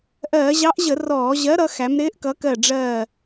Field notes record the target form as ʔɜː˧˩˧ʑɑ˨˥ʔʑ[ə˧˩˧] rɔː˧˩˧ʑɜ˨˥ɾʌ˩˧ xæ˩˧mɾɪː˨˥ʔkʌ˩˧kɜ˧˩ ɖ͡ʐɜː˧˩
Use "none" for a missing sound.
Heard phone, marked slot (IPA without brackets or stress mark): ə˧˩˧